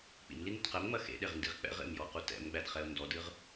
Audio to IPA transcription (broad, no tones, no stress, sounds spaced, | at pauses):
k͡p ḭ m l i n u t q ɛ m ŋ͡m ɐ x ḛ ɗ e ʁ n d i ʁ k͡p ɛ̰ ʁ ḛ m j ɔ q u t ɛ̰ m ɡ͡b æ d χ ɛ ʊ̯ n d ɔ d ɨ ʁ